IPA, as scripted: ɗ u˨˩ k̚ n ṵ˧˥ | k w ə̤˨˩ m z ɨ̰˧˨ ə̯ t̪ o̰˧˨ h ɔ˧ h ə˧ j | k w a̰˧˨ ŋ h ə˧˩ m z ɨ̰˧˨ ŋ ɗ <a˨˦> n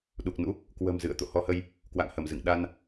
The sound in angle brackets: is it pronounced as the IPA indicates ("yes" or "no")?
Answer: no